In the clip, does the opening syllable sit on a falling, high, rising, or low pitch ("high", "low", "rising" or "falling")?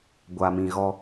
low